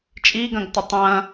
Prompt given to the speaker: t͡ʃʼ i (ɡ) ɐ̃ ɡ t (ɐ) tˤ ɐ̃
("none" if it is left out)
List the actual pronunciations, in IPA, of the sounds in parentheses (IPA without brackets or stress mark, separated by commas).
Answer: ɡ, ɐ